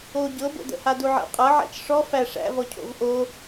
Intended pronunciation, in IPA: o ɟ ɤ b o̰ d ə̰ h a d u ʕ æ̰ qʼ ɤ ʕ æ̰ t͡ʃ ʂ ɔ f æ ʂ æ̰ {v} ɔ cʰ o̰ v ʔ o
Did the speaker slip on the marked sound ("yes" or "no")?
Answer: no